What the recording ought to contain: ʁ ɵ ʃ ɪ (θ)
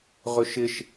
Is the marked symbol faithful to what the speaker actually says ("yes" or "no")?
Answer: no